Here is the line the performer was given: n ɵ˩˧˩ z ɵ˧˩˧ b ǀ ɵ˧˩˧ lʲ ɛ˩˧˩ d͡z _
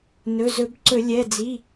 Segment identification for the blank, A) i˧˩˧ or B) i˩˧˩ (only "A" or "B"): B